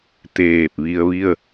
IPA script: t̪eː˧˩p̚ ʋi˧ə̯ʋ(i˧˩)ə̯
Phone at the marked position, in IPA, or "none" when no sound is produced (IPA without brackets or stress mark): i˥˨